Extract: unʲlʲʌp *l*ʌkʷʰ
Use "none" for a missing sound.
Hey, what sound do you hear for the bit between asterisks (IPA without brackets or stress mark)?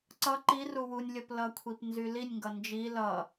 l